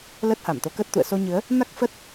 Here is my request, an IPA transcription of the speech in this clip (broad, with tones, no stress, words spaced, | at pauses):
ləː˦˥t̚ha˧˩mt̪o˨˦kəː˦˥t̚ t̪ṵ˧˨ə̯ so˧ ɲɨ˨˦ə̯ | na˦˥k̚fə˦˥t̚